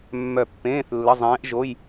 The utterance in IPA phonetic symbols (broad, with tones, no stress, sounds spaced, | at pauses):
mː œ˦˨ pː ẽː˧˥˧ θ lː ə˧˥˧ zˤ ẽː˧˥ ʔ ʒ o˧˥˧ j